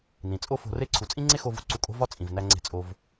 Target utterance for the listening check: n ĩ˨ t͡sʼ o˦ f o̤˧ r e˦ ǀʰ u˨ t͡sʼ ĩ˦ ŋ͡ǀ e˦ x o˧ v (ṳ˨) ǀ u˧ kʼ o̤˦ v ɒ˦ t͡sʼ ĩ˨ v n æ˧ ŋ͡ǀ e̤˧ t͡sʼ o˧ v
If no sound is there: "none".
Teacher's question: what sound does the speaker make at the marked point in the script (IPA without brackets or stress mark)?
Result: ṳ˨